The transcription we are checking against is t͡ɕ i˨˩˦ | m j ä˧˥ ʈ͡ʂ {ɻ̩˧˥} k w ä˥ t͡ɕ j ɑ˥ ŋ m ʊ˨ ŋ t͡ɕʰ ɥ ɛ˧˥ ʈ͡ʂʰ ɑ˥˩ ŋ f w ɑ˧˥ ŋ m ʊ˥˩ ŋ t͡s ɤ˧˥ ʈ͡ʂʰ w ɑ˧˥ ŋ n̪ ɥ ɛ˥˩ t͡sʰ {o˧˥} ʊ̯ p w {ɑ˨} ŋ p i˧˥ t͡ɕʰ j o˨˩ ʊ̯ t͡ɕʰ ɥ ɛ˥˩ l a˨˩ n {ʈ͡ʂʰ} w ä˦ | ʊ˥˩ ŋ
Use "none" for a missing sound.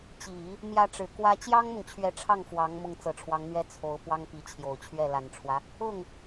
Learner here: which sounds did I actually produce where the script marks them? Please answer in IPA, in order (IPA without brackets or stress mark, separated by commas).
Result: ɻ̩˨˩, o˧˥, ɑ˥, ʈ͡ʂʰ